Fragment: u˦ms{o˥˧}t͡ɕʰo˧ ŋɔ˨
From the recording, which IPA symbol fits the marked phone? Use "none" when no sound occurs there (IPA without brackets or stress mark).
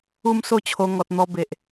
o˥˧